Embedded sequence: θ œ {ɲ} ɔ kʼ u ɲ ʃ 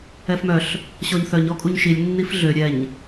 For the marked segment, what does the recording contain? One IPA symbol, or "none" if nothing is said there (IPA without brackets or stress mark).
ɲ